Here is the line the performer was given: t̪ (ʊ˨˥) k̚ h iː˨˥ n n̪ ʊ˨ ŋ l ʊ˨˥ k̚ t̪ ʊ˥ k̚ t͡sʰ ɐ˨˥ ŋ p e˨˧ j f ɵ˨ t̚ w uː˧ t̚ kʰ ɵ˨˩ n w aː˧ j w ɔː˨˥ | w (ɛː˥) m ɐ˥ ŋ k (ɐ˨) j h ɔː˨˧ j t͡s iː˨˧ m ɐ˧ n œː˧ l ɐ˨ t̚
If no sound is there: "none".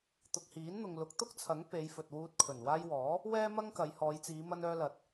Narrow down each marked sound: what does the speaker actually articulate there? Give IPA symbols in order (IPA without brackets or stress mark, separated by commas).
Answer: ʊ˨, ɛː˥, ɐ˨˧